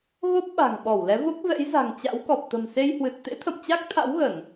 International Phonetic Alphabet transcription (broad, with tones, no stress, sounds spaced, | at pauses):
ɣ o˦˥ p̚ ɓ a̤˨˩ ŋ ɓ ɔ˧˩ w l ɛ˨˦ v o˦˥ k̚ v ɛ̰˧˥ j z a̤˨˩ ŋ t͡ɕ a̰˧˥ w k ɔ˨˩ p̚ t̪ ə̤˨˩ m s e˧ j h w ɨ˨˩ t̚ t̪ ḛ˧˥ t̪ʰ ə̰˧˨ m t͡ɕ a˦˥ k̚ t̪ʰ a̰˧˥ w ɣ ə˧˩˨ n